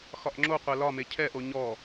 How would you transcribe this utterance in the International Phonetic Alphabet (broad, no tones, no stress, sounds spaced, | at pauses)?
x ɒ ʔ ŋ͡ǁ o qʷ ɛ l ɒ m e cʰ ɛ ʔ o ɲ ɔ